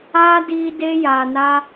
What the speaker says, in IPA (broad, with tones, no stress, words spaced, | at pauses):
aː˦diː˧ de˦ja˨na˦